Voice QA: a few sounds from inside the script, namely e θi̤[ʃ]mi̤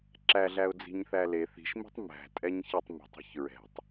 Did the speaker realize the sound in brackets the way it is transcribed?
yes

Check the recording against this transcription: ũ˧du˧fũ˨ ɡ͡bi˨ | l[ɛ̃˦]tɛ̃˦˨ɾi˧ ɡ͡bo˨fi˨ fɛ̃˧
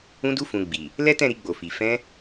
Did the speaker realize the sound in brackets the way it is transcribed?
no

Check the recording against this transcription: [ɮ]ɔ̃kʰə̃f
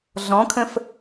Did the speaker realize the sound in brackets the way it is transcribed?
yes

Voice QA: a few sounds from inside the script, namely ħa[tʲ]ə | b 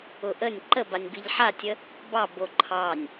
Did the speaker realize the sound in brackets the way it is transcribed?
yes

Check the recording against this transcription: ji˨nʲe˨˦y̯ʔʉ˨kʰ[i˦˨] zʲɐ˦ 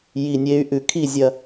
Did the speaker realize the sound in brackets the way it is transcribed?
yes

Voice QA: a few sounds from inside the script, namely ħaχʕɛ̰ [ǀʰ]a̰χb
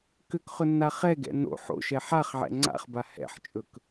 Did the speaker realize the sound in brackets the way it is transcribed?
no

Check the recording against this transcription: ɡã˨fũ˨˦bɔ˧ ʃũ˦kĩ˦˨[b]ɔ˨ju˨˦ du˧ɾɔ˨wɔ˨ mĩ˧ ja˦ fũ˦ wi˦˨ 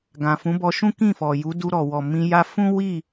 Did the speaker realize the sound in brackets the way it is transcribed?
no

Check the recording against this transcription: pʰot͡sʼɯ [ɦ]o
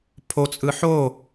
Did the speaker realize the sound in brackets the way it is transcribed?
no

